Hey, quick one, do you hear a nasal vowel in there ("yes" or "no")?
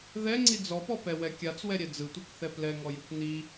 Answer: no